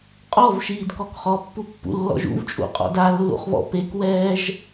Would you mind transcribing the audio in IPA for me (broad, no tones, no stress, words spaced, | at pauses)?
qʼɔvʃiːdkɔk χɔpːupːṵlːɔ̰ʒ ṵvt͡ʃʼṵqʼɔ̰d alːṵχβɔ̰ pekwɛːʒ